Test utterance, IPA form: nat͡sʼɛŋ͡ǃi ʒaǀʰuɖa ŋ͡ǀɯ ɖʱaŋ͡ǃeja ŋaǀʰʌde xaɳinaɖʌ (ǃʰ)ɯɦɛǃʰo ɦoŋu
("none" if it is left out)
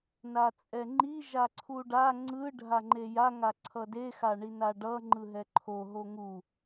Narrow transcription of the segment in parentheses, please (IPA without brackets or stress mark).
ŋ͡ǃ